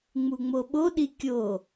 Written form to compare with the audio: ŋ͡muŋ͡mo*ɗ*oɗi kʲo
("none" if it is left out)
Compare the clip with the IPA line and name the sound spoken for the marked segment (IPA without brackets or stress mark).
ɓ